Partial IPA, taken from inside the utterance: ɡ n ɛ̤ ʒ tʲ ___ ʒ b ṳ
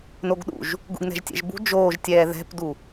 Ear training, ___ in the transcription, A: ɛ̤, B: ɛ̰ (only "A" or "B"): B